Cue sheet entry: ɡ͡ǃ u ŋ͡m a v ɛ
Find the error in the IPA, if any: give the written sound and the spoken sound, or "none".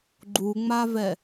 none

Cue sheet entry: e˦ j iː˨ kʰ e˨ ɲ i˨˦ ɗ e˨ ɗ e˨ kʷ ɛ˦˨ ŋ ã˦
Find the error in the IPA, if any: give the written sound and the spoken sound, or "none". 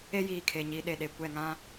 none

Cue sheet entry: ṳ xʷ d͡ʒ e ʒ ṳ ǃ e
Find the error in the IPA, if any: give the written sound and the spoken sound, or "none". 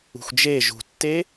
ǃ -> tː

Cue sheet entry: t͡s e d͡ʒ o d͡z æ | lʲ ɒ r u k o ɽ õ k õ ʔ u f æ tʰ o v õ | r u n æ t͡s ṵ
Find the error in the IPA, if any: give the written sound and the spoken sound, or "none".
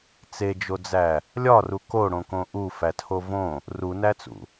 none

